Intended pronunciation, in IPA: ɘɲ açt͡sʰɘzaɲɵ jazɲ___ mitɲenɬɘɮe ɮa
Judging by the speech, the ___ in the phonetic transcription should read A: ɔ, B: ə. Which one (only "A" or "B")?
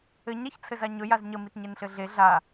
B